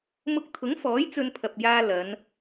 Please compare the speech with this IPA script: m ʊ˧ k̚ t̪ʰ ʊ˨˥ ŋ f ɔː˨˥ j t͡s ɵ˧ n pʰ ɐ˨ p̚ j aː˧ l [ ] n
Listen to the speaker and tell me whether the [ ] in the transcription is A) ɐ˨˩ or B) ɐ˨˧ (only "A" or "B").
B